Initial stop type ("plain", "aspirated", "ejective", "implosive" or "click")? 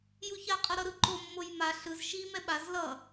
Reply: ejective